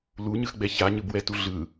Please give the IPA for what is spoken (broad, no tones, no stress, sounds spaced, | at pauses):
l u ɲ ɯ x ɡ͡b ɛ ç a ɲ ɯ b w ɛ t u ɮ ɯ